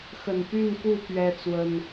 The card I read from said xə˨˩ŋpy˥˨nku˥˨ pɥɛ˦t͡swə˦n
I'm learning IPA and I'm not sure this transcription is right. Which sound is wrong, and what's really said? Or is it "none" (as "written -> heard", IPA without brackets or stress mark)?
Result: ŋ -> n